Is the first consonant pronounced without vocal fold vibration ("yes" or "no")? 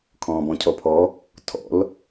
yes